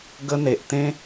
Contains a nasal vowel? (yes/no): yes